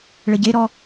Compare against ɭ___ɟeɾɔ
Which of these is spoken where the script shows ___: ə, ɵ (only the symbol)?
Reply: ə